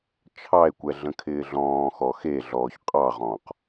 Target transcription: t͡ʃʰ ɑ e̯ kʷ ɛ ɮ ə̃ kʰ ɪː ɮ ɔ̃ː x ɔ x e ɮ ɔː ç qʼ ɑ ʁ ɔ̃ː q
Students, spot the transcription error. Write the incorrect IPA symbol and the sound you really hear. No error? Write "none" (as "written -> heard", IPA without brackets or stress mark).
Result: none